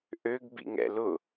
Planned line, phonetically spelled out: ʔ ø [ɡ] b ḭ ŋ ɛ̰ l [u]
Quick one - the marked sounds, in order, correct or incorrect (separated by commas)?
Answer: correct, incorrect